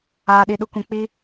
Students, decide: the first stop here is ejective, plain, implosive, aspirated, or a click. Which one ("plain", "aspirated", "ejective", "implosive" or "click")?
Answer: implosive